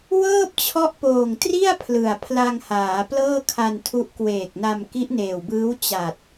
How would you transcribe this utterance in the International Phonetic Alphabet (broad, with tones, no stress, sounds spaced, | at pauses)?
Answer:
w ɤː˥˩ p̚ t͡ɕʰ ɔ˦˥ ʔ p oː˨˩ ŋ t r i˥˩ a̯ pʰ l ɯ˨˩ a̯ pʰ l a˧ ŋ h aː˩˦ p l ɤː˥˩ kʰ a˧ n tʰ u˦˥ ʔ k w eː˨˩ k̚ n a˧ m k i˦˥ ʔ n eː˨˩ w b ɯː˦˥ w t͡ɕ a˨˩ t̚